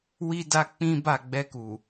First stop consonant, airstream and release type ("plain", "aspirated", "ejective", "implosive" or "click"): plain